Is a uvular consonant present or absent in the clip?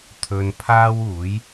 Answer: absent